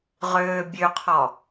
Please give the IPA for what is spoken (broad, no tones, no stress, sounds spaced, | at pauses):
ʁ øː bʲ ø qʰ ɔ